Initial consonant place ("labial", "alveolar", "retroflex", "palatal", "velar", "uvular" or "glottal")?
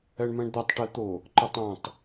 retroflex